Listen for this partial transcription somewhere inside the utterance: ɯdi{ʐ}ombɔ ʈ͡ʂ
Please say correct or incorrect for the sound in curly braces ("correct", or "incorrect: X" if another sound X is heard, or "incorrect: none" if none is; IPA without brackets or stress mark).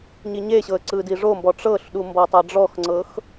correct